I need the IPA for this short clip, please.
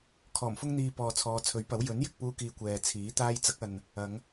kʰɔː˨˩mfʊ˥ŋn̪iː˧ pɔː˨t͡sʰɔː˨˧t͡sʰɵ˨˥ɥpɐ˨˥w jɵ˨˥njɪ˨k̚puː˧kiː˨ kʷɛː˨t͡sʰiː˨˥t̪aː˥j t͡sɐ˨˥k̚ɐ˨n | ɐ˨˧ŋ

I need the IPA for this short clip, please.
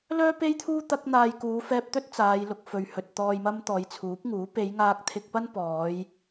lœː˥pe˥jt̪ʰuː˥ t̪ɐ˧k̚n̪aː˨j kuː˨˧fɛː˧p̚t̪ɵ˥t̚ t͡saː˨˧jlʊ˧k̚fɵ˨ɥhɵ˨t̚ t̪ɔː˨jmɐ˧m t̪ɔː˨˧jt͡sʰuː˨˥p̚ŋuː˨˥ pe˨˧jŋaː˧k̚ t̪ʰɪ˧k̚ pɐ˥npɔː˨˧j

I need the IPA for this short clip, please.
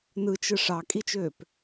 nɯt͡ʃɯ ʂɑkʼit͡ʃøːp

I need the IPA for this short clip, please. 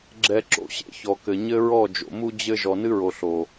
ɡ͡ǁɛ˧ǁo̰˧ɕḛ˦ çɔ˨kɘ˨ ɲɘ˦ɹɔ˦˨d͡ʒo̰˨mu˦ d͡ʑɘ˦ ʒɔ˨nɨ˦ɹo˨ ɬo˨

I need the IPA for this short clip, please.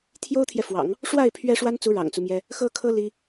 t̪ʰjo˥ʊ̯t̪ʰjɛ˨fwɑ̰˨˩˦ŋ | ʂwa˥˩ɪ̯ pʰɥɛ˥ʂwa˥nt͡su˧˥ ɻɑ̰˨˩ŋt͡su˦mjɛ˥ | xɤ˥kʰɤ˥ li˥

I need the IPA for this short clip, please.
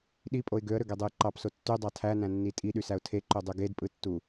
ɗipʼoɪ̯ ɡøə̯ɾøɡedˤɯj ǃɑpso tːydˤɑ tʰænæ̃nːi tʼiɗysæʊ̯ tʰeǃødˤy ɡedpʼɯtːu

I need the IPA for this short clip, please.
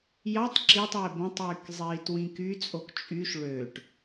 jɑtˤ ǁitˤwe bõtˤyːk zˤiːtwĩkyt͡sʼok t͡ʃʼyʃ ɭøʈ

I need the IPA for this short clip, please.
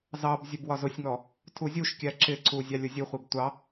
zɑb zʲəbwɒzʊsʲŋɔ | tʰuzʲuʃkʲæ ǁɪǀu zʲɑlʲʊzʲuχʷib tʷɑ

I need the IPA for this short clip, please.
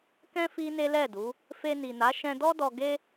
kɛ̃˦ fi˦ne˦lɛ˦˨du˨˦ | fe˧ni˨na˨˦ ʃɛ̃˧dɔ˦dɔ˧ ɡe˦

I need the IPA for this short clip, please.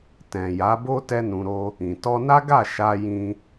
tɛ̃˨ja˨˦bo˦ tɛ˦nũ˧ɾo˦ | ĩ˨ tɔ˧na˦ɡa˦˨ ʃa˧jĩ˧

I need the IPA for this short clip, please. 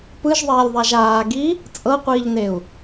pɯʒðˤeːlʲðˤaʒ aːɡi | t͡sʼɤqʷiːʎneu̯

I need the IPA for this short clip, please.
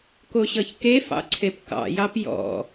koɕʌçkefɑ̰ ǀʰepkɑ̰jɑp jɔ̰

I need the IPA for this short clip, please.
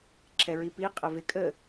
ǁʰɛɹipi qʼəvɪ kʼə

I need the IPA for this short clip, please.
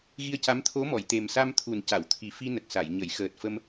ɣi˧ə̯ca˧˥m t̪ʰo˧˥mɔ˨˩˨jt̪e˨˩m sa˧mt̪ʰu˨˩nca˨˩˨w t̪ʰi˨˩fi˧nə˨˩k̚sa˨˩˨j ɲə˨˩˨jxəː˨˩t̚ fə˧m

